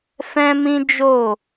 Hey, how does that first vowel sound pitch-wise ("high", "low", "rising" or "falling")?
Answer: high